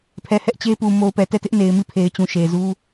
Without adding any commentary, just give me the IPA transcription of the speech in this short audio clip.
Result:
pʰ ɛ˨ h ɛ˦ ʔ t͡ɕ e˦ p u˨ m o˨ ʊ̯ p ɛ˨ t ɛ˦˨ t ɪ˦ ʔ n e˨ ɪ̯ m i˦˨ pʰ e˨ ɪ̯ t͡ɕ ũ˨ ʃ e˨ z u˦

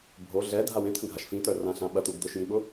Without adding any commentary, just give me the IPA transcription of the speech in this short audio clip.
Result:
bʱ o ɮ ɛ dʱ a w ẽ t̪ʰ ə̃ ɡʱ a ʃ f ĩ t̪ œ r ã ɬ ã ɓ ɐ t̪ u ɡ d̪ ʊ ʃ j ĩ ɓ ʊ

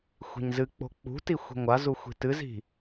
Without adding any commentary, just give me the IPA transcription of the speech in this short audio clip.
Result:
xʷ i̤ ɲ z ɨ k͡p o̤ k͡p ṳ t i xʷ i̤ ŋʷ a z u xʷ i̤ t ɨ z i̤

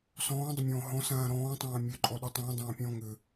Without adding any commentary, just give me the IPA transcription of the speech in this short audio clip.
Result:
s ɔ̃ː dˤ ʏ mʲ ɔ̃ː ɦ ɔ̃ s ãː ɾ ɔ̃ː tˤ ãː mʲ ø ǃʼ ɔ ɗ ø tˤ ĩː dˤ ãː pʲ ɔ̃ː ŋ ʏ

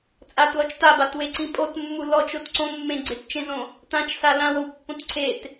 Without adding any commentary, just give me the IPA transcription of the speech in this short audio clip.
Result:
t͡sʼ a t l ɔ t͡ʃ t a b a t w e ǀ ĩ pʼ o t mː u l ɔ t͡ʃ o t ǀ õ mː ẽ ɡ͡ǀ e t t͡ʃ ẽ z õ | t ã t͡ʃ s a l ã w o w pː õ t ǀʰ e t

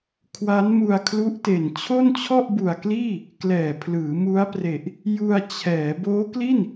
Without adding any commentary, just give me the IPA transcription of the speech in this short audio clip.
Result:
kʰ w a˦˥ n m u˧ a̯ kʰ l u˦˥ ʔ t e˨˩ n t͡ɕʰ o˥˩ n t͡ɕʰ ɔ˥˩ ʔ b u˨˩ a̯ k l iː˥˩ | k l ɛː˨˩ pʰ l ɯː˩˦ m u˦˥ a̯ p r e˨˩ ʔ | j u˧ a̯ t͡ɕʰ ɛː˩˦ b oː˦˥ k l i˥˩ n

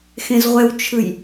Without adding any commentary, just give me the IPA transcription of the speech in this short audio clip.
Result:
x ẽ z ʁʷ ɛ w t͡ʃʰ ɯ j

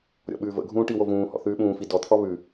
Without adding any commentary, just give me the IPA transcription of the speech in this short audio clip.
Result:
ɾʲ ɔ̰ ɓ ʉː v ə̰ ɡʱ ũː ʈ i w o v ũː h ɔ̰ θ ʉː ɓ ũː f i d ɔ t̪ʰ ɔ β ʉ

